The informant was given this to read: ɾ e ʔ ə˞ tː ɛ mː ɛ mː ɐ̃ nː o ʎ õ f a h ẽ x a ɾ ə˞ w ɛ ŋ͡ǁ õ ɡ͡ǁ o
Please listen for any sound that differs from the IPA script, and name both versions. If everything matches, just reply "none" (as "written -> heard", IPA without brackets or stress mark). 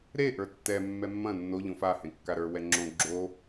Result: x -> kː